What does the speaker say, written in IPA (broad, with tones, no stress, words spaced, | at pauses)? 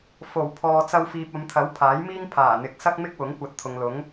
fo˨˩w pʰɔː˨t͡sɐ˧wfiː˨p̚ ɐ˨˧mt̪ʰɐ˨˥w pʰaː˨˥jmiː˥ŋ pʰaː˨˩n̪ɪ˨k̚sɐ˥k̚ mɪ˥k̚wʊ˨˥ŋkʷɐ˨˥t̚ t̪ʰʊ˨ŋlʊ˨˥ŋ